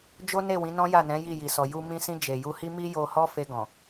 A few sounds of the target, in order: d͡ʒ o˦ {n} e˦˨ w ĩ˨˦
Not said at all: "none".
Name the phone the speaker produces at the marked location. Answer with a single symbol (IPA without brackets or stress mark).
n